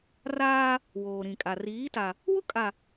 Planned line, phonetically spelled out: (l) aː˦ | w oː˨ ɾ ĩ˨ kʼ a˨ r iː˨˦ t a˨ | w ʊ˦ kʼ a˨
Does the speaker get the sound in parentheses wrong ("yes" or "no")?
yes